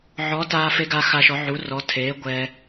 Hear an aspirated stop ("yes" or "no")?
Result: yes